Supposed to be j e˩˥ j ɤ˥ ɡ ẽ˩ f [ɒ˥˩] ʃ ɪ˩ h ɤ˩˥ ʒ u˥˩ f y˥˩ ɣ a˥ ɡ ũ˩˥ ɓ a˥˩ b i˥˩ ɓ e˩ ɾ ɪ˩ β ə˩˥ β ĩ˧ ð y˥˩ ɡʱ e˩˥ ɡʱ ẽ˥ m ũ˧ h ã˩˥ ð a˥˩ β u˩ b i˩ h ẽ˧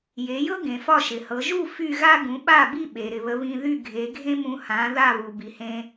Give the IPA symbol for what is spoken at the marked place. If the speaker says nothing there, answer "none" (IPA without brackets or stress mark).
ɒ˥˩